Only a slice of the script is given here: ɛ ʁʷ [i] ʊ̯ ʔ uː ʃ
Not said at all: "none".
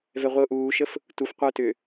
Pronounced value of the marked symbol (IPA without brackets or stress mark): i